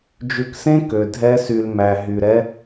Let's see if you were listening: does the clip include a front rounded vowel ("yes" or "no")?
yes